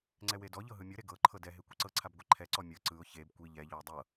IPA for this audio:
ŋ͡ǀ ɛ w e d ɔ ʎ ɤ ɦ ɯ mʲ ɤ ɾ e ɡ ɤ ǃʰ ɤ d ɛ ɦ e kʷ i ǀ ɤ ǀʰ a b ɡʷ ɛ ǃʰ ɛ ǀ ɔ mʲ ɤ ǀ ɯ ʊ̯ ç e b kʷ i ʎ ɛ ʎ ɔ w dˤ ɤ

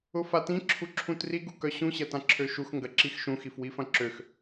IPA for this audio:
ʊ f a t ĩ ǁʰ u ǁʰ ũ t r i ɡ u k œ ɕ ũ ɕ ɐ t ã ǁʰ ø ʃ u x ŋ ɡ ɐ ǁ i x ʃ ũ x i f w i f ɐ̃ ǁ ø x

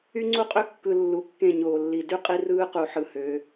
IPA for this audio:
y˦ ŋ͡ǀ u˦ qʼ ø˦ kː ɯ˨ lː u˨ kː ẽ˦˨ ɲ oː˨ lː i˨ d y˦ qʼ i˦ r ɯː˦ q u˨ ħ ɯ˨ h ø˨˦

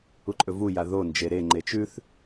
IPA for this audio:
u ǃʼ ɵ v u j a ð o n d͡ʒ e ɾ e ŋ͡ǃ e t͡ʃ ʉ θ

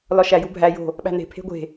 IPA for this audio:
l ɒ ʃ æ j u bʱ æ j o̤ | ɓ æ̤ n e̤ pʰ e̤ ɡʷ e̤

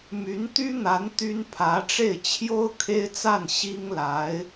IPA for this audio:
m y˧˥ n t̪ y˥ n̪ a˧˥ n t̪ y˥ n pʰ ä˧˥ ʈ͡ʂ e˥˩ ɪ̯ t͡ɕʰ j o˥ ʊ̯ kʰ e˥ ɪ̯ t͡s a˥˩ n ɕ i˥ ŋ l a˧˥ ɪ̯

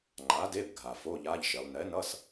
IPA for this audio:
ŋ͡ǃ a˩˥ d e˧˥˧ b ɡʱ a˩ f o˧˥˧ ʎ a˧˥˧ ʎ ʃ e˩˧ lˠ n ɛ˩˥ n ʌ˧˥˧ s

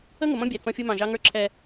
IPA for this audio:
ə˦ ŋ ʊ˨ m ɔ̃˦ bʲ æ˨ t͡s ɔ̃˦ fʲ ʊ˦ m ɑ̃˨ ʒ ɑ˦ ŋ ə˞˦ ǁʰ ɛ˦

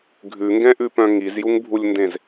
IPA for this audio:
ɡʱ ʉ ŋ ɡ ɛ̃ ʔ ʉ p œ̃ ŋ i z j u ŋ bʱ u lʲ n d ẽ z

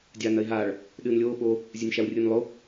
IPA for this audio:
dʲ aː n ɐ ɪ̯ ɦ aː ɭ | ɗ ɨː n lʲ oː ɓ o | zʲ ɨ nʲ ʃ a w rʲ ɨː n lˠ o

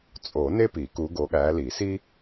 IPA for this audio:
t͡sʼ o˨˩˦ n e˥ p i˨˩˦ k u˨˦ ɡ o˨˦ ɠ æ˨˦ l i˨˩˦ s i˥

